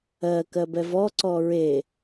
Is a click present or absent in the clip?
present